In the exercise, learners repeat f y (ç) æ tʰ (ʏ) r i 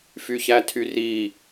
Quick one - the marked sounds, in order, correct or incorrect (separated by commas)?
correct, incorrect